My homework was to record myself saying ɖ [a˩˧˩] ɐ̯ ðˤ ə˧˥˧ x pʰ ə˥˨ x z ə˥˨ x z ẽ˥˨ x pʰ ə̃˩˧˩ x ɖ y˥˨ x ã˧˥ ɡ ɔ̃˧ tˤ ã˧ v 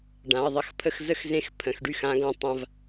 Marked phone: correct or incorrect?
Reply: incorrect